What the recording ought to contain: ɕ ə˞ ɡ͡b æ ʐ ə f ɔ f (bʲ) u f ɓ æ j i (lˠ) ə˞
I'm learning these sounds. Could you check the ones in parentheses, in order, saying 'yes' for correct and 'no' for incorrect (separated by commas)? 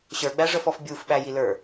yes, no